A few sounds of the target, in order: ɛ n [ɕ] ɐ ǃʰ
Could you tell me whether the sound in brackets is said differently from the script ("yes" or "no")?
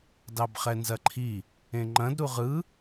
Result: yes